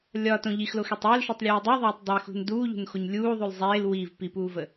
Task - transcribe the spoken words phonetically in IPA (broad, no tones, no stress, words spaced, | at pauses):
lʲɒtõ ʎixloxetˤ əːlʃutˤlʲuː dˤuðˤeːtˤ dˤexṳn duːʎṳnxoɲ lʲuːðˤul zˤeːl wiv pipuːvə